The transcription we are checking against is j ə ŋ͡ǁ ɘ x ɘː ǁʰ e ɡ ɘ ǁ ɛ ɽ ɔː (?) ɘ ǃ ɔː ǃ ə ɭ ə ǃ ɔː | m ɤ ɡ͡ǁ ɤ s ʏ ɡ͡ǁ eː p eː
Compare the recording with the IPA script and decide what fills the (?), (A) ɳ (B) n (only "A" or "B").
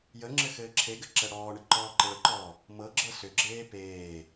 A